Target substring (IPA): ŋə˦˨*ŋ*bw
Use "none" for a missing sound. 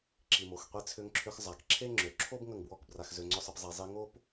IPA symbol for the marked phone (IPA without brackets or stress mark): ŋ